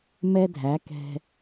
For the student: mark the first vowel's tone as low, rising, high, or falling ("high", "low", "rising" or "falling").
high